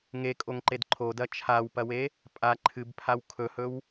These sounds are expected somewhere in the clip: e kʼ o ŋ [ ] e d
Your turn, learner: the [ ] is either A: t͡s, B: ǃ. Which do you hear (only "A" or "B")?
B